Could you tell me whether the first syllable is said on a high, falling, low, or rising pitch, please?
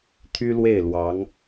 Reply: high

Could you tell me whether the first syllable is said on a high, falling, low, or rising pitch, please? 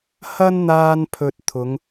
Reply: high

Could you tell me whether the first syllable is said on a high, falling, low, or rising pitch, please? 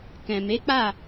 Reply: low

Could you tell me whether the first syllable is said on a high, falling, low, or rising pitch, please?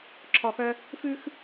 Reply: low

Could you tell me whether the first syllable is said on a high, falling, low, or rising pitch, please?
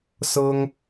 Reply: high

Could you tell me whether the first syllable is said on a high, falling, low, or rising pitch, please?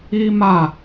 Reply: high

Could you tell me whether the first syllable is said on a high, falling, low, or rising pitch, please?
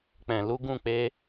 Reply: low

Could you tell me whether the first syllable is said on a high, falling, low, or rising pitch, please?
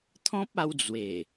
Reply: high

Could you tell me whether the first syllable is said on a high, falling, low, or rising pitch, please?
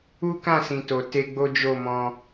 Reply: high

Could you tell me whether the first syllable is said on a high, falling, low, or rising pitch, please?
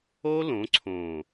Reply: high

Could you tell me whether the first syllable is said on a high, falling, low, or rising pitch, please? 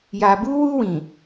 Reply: low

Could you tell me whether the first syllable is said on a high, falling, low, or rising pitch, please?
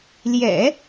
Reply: low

